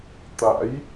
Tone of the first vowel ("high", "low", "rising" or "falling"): rising